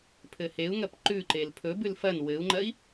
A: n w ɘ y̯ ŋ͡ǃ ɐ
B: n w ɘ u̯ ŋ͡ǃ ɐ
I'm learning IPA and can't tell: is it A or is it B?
B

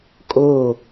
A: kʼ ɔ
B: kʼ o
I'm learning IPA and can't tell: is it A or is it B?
B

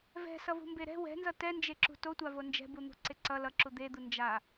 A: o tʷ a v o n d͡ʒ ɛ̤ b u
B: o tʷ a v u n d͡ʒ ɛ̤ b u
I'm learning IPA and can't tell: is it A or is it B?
A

